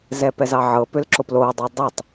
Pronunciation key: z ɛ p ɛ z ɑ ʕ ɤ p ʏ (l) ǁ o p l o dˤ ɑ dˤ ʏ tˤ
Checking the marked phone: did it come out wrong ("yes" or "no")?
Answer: no